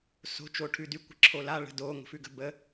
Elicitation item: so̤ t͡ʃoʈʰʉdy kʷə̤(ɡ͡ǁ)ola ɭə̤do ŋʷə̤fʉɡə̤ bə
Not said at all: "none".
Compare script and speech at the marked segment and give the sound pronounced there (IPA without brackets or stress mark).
ǁʰ